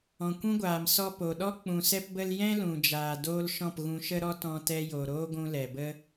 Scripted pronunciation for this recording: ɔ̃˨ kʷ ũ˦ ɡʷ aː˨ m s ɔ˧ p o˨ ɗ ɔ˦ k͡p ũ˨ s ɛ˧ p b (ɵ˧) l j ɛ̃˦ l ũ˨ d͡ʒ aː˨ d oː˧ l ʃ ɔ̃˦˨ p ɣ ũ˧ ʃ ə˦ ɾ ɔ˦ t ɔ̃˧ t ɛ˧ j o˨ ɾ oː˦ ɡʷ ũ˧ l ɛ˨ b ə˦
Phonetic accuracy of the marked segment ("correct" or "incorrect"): incorrect